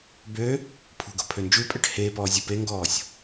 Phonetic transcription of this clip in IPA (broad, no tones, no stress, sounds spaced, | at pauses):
b ø | pʰ ṳ ɡ o̤ pʰ ø n d͡ʒ ʉ pʼ ɛ ʈ h eː p ɔː zʲ u p e ŋ ɡ ɔː sʲ